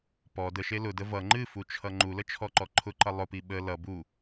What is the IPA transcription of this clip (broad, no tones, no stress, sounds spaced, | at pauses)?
p ɔ d ə ʃ e l ʊ d ə v ʌ ŋ͡ǃ ɨ f u t͡ʃʰ ʌ ŋ͡ǃ u l ə t͡ʃʰ ɔ ǃ ɔ ǃʰ ʊ ǃ ʌ lˠ ʊ p i ɓ ə l ʌ b u